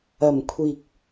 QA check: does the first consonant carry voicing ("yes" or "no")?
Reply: yes